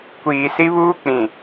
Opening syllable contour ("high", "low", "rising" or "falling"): low